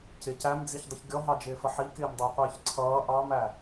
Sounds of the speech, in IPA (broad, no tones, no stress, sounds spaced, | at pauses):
c ɪ c æ m d͡z i ç dˤ ə ç ɡʲ ɔ ɦ ɑ d͡ʒ ɪː f ə ħ i k ɪː m dˤ ʌː qʷ ɪː ç ǀʰ ʌː ʔ ɑ m æ